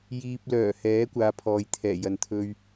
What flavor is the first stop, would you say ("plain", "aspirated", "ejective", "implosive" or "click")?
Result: plain